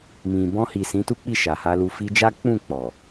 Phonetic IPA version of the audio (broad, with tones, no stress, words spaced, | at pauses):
mĩ˨ bɔ̃˧hi˨ sĩ˨˦tu˦k͡pi˦˨ ʃa˨ha˧lu˧ fi˧d͡ʒa˦ k͡pũ˦˨k͡pɔ˨